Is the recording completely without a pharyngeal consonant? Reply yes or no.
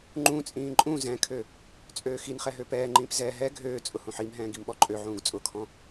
no